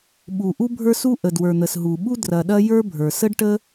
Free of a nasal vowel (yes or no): yes